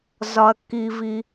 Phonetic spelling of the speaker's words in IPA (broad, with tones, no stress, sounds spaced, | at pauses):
z ɒ˧ ɐ̯ kː i˧ v i˧